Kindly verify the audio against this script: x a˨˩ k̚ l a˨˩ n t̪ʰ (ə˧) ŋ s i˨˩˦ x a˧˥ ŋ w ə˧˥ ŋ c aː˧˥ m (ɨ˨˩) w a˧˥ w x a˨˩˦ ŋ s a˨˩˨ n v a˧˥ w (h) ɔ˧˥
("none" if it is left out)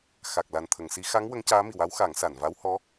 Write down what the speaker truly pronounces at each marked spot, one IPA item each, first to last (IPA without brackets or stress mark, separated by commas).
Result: ə˨˩˨, i˨˩, h